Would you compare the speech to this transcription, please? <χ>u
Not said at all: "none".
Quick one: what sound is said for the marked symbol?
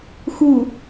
x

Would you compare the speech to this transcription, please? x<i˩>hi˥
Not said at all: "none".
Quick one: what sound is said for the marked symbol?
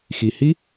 i˩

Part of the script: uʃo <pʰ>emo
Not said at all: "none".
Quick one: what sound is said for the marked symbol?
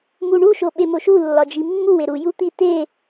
ɓ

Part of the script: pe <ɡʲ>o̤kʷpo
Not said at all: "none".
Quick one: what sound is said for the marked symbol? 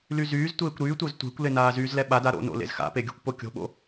ɡʲ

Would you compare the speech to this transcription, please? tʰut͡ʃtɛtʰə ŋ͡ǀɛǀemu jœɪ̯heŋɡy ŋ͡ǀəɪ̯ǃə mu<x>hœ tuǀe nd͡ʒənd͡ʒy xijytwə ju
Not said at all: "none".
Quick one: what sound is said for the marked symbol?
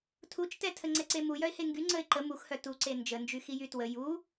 x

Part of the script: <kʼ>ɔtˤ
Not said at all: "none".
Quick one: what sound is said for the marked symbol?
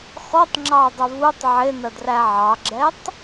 x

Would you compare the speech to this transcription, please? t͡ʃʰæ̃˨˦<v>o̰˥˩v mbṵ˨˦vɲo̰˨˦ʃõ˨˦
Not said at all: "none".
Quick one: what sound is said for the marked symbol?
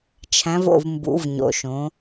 v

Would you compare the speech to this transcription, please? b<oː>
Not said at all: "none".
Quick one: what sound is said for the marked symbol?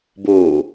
oː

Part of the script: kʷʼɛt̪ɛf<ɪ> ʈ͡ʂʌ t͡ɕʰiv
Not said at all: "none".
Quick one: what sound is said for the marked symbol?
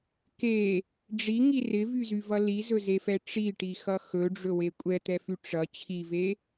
y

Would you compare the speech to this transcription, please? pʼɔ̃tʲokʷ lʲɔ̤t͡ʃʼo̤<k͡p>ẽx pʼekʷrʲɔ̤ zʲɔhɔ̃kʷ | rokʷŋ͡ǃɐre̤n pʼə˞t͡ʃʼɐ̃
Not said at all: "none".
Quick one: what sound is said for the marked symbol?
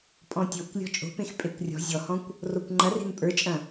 p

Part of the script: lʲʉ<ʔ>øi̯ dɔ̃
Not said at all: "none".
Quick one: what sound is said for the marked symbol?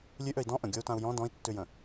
ʔ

